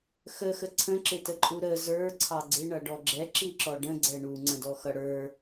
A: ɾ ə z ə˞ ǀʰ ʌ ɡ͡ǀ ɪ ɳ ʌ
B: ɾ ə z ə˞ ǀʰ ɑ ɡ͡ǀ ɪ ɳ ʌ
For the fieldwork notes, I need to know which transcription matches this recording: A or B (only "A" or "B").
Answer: B